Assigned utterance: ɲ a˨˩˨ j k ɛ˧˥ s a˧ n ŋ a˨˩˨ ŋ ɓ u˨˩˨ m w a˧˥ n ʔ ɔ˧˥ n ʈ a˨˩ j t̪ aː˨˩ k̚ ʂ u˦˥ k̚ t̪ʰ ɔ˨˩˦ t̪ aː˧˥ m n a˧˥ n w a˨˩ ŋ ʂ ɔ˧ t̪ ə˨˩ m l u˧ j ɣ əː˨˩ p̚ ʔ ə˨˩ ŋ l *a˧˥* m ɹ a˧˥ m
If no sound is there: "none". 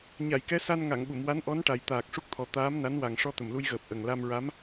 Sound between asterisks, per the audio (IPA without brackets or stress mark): a˧